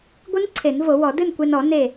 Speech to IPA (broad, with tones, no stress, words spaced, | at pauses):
ɡʷɨ˦˥n ǀʰe˨˩˦nvo˨˩˦wɔ˨˩˦ dɨ˥˨nkʷe˧nɔ˨˩˦ ne˧˩